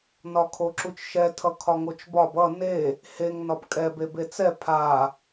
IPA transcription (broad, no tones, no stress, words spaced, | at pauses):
nɒkʰoǁut͡ʃʃɛ tʰʌkʰɒŋot͡ʃbɒb ʌ ne | heŋ nɒbkʼɛ bebet͡sɛ pʰa